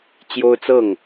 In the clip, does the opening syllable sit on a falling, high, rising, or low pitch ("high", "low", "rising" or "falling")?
high